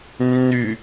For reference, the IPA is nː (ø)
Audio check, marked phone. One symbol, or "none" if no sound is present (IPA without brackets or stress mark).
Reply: y